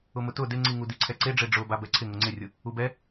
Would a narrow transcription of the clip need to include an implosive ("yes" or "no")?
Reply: no